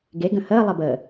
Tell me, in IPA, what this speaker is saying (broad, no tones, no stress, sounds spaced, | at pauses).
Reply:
ɡ e ɡ ə̃ h əː lˠ ə b əː